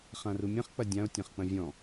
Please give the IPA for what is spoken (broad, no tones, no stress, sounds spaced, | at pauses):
χ ã r u mʲ ɐ̃ χ k͡p ɐ dʲ ã o̯ tʲ ã χ k͡p ɐ̃ vʲ ɔ̃